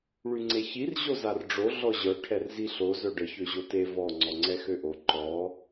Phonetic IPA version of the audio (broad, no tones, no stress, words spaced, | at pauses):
ɭyŋ͡ǀeçir ʑozarɖ͡ʐo ɮɔʑœ ʈʰɛrziɬo zœɖə çøʑote vɔ ŋ͡ǀɔŋ͡ǀɛxøʔo ǃɔ